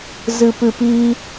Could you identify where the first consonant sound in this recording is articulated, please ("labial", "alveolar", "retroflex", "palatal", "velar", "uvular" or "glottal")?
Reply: alveolar